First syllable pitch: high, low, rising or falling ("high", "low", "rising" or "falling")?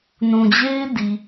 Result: low